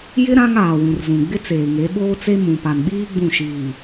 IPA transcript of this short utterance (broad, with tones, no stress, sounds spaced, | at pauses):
j ɪ˦ ɾ ã˦ ŋ aː˨ w ũ˨ r z ũ˨ ɡ͡b ɪ˦ t͡s eː˨ ŋ e˨˦ ɓ oː˦ t͡s e˦ m ũ˨ p a˨ n ɓ iː˦ ɡ͡b ũ˦˨ ʃ iː˨